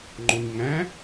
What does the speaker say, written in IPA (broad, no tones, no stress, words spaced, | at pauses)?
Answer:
ŋ͡ǃoɲŋæ̃